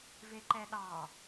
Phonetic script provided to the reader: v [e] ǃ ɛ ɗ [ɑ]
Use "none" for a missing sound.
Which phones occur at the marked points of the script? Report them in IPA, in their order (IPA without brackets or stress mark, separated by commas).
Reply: e, ɑ